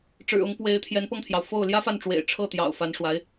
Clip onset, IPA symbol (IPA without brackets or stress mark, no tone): ʈ͡ʂ